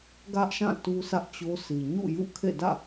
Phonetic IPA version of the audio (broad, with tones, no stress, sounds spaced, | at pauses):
ɡ ä˦ ʔ ʃ ã˦˨ t u˦ sʰ ä˦ ʔ t͡ɕ o˦ sʰ i˨ ɲ ṵ˦˨ j ṵ˦˨ kʰ ḛ˦˨ d ä̰˦˨